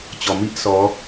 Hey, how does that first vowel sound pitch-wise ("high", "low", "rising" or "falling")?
low